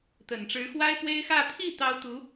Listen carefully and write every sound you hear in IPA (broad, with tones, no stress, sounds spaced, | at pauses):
t̪ ə˨˩ n ʈ͡ʂ ɻ̩˧˥ x w a˥ ɪ̯ p w e˥ ɪ̯ x ä˥˧ pʰ i˥˩ t̪ ɑ˥ ʊ̯ t̪ u˧˥